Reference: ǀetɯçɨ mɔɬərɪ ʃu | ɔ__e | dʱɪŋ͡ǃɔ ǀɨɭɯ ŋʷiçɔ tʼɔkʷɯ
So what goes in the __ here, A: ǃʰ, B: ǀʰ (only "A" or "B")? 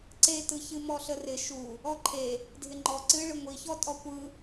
A